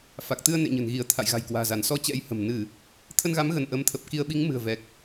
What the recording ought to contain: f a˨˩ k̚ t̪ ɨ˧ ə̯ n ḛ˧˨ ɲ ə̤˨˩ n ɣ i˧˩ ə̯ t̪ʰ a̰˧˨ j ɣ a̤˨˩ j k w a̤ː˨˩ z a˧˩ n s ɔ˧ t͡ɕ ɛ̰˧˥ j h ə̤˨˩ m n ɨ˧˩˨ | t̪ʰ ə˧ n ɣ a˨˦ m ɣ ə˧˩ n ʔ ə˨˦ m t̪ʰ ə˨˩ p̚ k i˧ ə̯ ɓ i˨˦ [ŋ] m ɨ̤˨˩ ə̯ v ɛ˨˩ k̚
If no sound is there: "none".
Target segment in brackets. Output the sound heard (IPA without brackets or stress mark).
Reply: ŋ